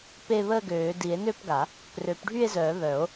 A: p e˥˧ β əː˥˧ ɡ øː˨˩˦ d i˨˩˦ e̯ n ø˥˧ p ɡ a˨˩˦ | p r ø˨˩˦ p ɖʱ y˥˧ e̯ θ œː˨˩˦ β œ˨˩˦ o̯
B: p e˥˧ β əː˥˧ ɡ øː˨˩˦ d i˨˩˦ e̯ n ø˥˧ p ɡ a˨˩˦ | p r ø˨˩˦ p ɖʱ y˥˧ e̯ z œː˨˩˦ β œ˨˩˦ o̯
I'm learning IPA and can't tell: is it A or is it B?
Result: B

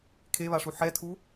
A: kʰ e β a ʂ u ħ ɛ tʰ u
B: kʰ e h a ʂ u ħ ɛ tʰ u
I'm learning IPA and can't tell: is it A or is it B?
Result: A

